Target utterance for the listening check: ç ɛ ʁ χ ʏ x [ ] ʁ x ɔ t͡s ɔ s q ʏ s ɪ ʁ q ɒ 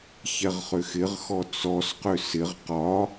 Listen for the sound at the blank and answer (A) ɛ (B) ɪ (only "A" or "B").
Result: B